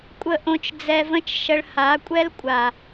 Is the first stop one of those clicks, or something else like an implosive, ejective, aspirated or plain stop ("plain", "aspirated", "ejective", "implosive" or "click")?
ejective